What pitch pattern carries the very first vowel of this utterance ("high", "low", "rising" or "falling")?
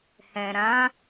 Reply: low